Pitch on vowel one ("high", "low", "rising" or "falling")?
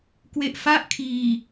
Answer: low